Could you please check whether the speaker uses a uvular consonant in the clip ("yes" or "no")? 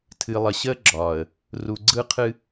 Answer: yes